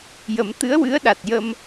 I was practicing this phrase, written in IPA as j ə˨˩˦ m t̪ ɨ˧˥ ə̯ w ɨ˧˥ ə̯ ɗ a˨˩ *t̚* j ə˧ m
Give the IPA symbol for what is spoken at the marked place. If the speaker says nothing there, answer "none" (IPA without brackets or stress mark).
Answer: t̚